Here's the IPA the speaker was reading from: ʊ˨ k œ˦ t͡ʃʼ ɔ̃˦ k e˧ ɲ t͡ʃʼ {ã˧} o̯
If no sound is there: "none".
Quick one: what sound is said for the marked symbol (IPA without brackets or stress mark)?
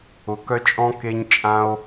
ã˧